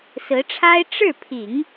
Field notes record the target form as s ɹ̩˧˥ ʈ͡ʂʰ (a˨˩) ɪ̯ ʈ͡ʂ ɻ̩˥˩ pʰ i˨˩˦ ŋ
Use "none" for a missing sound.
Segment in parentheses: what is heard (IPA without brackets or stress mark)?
a˥